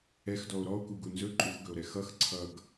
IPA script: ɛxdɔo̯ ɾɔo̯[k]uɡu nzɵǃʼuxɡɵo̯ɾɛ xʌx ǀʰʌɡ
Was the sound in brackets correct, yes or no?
yes